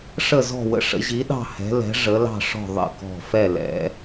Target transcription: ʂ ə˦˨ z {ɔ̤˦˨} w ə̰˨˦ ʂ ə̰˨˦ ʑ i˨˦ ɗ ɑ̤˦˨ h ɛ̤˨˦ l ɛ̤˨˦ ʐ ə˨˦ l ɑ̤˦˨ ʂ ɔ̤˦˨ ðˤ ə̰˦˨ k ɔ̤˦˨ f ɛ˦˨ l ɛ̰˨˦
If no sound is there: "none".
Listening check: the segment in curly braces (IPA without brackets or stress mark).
ɔ̤˦˨